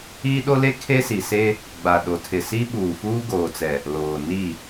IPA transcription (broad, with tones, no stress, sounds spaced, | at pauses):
iː˦ ɗ o˦ l e˦ kʰ e˦ s i˨ s e˦ | ɡ͡b a˨ ɗ o˨ tʰ ɪ˨ s i˦ ɓ uː˨ f uː˦ ɡ oː˨ t͡s ɛ˨ | l oː˨ n i˦˨